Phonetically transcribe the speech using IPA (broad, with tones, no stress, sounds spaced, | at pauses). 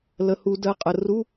l ə˩˧˩ h u˧˩˧ d ɜ˩˧˩ qʼ ə˩˧˩ r u˧˥˧